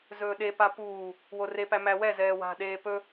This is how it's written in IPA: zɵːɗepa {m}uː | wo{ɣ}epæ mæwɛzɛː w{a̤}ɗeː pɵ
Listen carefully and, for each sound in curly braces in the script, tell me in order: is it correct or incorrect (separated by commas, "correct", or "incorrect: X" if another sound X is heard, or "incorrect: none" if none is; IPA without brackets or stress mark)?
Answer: incorrect: p, incorrect: r, correct